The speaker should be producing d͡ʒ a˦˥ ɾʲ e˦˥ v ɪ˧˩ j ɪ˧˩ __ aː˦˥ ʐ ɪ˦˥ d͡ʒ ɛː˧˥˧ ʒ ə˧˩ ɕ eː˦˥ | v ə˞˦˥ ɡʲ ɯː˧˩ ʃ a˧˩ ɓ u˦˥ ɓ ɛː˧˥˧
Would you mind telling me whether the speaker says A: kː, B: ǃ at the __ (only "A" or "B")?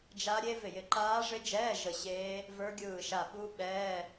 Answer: B